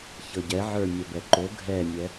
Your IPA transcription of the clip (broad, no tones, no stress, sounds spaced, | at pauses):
ç ɤ ɟ ɛ ʕ ə˞ mʲ œ b ɛ ǃ o ɡʱ ɛ mʲ ɛ